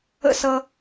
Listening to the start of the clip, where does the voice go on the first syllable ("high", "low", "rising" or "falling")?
falling